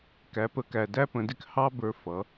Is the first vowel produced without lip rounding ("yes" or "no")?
yes